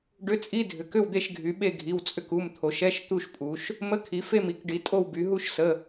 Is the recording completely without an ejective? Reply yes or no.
no